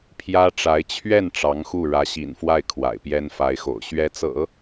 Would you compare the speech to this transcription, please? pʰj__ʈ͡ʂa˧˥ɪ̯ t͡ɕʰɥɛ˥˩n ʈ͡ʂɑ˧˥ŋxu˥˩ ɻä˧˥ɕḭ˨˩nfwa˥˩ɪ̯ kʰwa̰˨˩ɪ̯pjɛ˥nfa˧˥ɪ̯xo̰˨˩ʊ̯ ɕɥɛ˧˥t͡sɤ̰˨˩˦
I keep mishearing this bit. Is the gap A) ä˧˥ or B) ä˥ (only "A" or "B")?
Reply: B